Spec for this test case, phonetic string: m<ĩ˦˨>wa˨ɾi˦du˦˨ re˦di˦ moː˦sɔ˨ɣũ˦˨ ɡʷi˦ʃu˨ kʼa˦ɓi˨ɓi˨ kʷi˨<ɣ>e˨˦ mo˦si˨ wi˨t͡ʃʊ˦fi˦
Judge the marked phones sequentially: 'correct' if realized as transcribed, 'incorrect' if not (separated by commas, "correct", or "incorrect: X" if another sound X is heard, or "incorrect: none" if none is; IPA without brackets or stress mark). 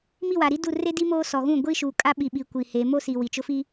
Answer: incorrect: i˦˨, incorrect: h